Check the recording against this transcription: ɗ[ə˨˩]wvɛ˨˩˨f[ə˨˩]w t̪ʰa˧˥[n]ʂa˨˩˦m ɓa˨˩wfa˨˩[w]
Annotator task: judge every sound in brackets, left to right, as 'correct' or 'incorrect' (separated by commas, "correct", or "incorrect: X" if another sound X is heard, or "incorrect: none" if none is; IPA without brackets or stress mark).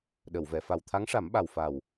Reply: incorrect: ə˨˩˨, incorrect: a˨˩, incorrect: ŋ, correct